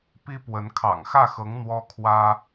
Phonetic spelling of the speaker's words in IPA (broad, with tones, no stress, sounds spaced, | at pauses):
p i˥ p w ə˧˥ n kʰ ɑ̰˨˩ ŋ x ä˥˩ x ɤ˧˥ ŋ n̪ w ɔ˥ kʰ w ä˥